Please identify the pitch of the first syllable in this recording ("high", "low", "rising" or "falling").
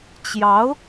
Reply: rising